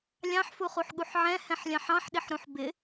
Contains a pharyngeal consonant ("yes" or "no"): yes